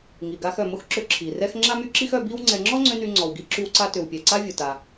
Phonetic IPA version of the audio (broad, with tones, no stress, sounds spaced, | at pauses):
ŋ i˩ ɡ a˧ x œ˩ m ʊ˥ x ǁ ʏ˧ ǁʰ i˩ r ɛ˥ x ŋ͡ǁ a˥ m y˥ ǁ i˥ x œ˧ b i˥ w ŋ͡ǀ ɛ˧ ŋ͡ǁ ɔ˥ ŋ͡ǀ ʏ˧ n y˧ ŋ͡ǀ ɔ˩ w ɡ i˧ ǁ y˧ w ǀ a˧ t ʏ˩ w pʲ ɛ˩ ǀ a˥ vʲ ʊ˩ t a˩